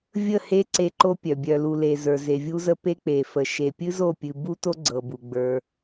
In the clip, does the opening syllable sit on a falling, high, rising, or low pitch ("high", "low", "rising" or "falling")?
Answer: falling